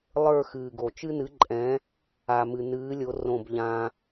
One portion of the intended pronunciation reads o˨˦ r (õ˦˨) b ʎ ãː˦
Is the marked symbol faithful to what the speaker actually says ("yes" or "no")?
yes